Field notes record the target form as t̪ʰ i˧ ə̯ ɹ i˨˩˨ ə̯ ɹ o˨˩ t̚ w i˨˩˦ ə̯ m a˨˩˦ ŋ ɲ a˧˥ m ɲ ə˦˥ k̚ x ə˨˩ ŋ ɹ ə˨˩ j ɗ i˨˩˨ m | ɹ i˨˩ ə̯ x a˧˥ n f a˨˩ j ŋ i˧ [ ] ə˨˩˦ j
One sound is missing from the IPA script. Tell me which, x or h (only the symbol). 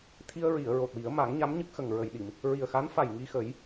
x